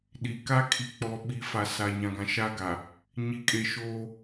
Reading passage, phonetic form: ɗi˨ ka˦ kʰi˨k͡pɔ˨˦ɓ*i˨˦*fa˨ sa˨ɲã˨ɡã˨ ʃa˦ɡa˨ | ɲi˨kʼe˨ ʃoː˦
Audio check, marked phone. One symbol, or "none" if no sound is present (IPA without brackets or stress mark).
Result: i˨˦